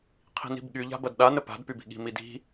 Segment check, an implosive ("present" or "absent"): present